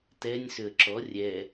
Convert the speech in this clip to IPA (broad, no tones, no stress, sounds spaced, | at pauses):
t ɛ nʲ s ʏ ə̯ ǁ ɔ rʲ ɛ